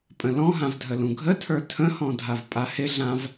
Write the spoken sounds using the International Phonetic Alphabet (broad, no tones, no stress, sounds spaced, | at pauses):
pʼ ə̃ l ɔ̃ ɦ ã v dʱ ə l ũ ɡʱ ə tʰ ə˞ tʰ ə̃ h ɔ̃ dʱ a v pʼ a h ɪ ɮ ã v